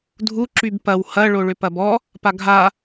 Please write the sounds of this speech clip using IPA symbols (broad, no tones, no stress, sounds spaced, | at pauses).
dʱ u ǁ y b p ɐ w h ɐ ɭ o ɭ ʏ p ɐ b ɔ | p a ɡʱ a